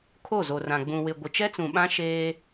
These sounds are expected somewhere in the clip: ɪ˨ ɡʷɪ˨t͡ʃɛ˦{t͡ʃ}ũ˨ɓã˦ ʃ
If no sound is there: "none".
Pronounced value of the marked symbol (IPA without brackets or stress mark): t͡s